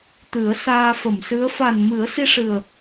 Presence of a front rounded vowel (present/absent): absent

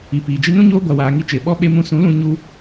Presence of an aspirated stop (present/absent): absent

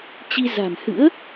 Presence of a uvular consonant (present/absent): absent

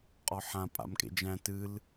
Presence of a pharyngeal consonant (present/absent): present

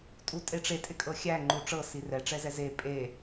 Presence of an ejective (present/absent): present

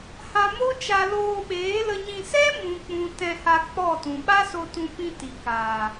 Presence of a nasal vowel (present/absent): present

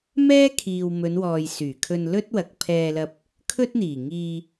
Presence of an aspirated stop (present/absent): present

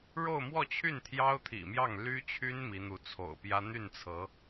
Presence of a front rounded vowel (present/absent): present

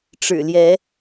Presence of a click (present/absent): absent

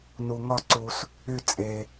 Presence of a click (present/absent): present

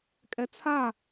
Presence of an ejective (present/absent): present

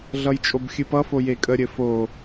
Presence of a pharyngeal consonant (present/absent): absent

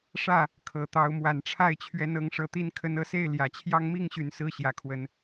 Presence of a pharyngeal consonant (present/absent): absent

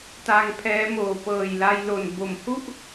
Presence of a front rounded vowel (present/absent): absent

